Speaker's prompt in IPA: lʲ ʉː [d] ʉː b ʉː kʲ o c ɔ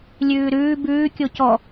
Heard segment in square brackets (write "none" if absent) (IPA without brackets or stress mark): ɾ